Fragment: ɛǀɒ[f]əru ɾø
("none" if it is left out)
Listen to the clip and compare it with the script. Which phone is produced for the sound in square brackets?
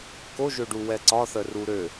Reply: θ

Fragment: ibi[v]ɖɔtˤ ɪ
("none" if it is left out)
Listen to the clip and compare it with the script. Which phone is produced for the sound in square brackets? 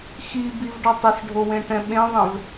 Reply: v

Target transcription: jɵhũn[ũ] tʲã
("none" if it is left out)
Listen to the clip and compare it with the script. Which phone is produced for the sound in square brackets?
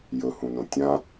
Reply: õ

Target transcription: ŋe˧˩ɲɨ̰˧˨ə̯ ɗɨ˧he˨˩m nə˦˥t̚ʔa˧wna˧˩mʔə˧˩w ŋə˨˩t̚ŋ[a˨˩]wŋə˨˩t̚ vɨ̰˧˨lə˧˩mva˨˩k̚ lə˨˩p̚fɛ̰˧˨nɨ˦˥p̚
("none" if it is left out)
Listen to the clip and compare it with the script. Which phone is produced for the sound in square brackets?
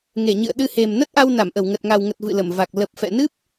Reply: a˨˩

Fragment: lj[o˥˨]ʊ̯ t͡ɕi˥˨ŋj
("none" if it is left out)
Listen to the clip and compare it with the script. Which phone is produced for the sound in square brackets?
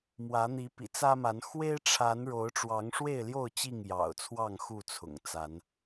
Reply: o˥˨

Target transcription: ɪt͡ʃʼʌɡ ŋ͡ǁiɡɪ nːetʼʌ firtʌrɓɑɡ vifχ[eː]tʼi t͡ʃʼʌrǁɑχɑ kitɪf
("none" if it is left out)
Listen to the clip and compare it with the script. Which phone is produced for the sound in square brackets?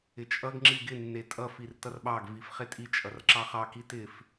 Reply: e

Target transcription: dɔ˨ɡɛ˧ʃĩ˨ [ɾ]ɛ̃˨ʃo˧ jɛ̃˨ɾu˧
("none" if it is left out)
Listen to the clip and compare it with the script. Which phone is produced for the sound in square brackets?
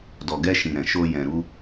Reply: ɾ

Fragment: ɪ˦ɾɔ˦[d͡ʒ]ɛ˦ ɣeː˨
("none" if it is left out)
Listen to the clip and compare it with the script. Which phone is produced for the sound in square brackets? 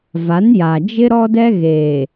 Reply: d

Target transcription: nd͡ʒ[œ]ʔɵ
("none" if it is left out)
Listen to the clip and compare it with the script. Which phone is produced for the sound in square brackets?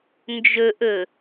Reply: ɵ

